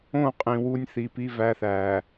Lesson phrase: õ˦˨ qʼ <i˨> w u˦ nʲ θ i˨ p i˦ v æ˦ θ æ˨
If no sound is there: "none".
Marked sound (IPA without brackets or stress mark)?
ĩ˨